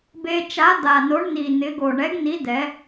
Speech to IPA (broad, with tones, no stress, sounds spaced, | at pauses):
b e˧ t͡ʃ a˨˥ d̪ a˨˩ n o˨˥ ɳ n̪ i˨˩ n̪ ɪ˨˥ ɡ o˨˩ ɳ ɛ˨˥ ɡ n̪ i˨˥ d̪ ɛ˨˥